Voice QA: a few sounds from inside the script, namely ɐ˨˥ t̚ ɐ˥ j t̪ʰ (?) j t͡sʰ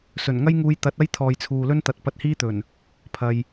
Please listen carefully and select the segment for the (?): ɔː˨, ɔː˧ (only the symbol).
ɔː˨